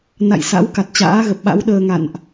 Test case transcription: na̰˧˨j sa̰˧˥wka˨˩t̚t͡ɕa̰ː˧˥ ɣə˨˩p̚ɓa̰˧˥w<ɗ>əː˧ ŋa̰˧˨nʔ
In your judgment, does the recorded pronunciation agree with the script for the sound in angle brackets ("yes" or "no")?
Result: yes